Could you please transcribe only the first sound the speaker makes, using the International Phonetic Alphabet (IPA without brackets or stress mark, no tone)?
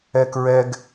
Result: ɛ